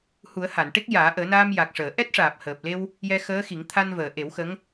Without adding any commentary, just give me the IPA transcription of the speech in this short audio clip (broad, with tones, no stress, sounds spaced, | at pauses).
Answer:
h u˨˩˦ ə̯ h a˨˩˨ n ʈ e˦˥ k̚ j aː˨˩˦ ʔ əː˨˩˦ n aː˧ m j a˨˩ k̚ ʂ əː˨˩˨ ʔ ɛ˦˥ t̚ ʂ aː˨˩ p̚ h əː˨˩ p̚ l e˧ w | j ɛ˧ x əː˧˥ x i˨˩˦ ŋ t̪ʰ a˧ n v əː˨˩˨ ʔ e˨˩˦ w x ə˧˥ ŋ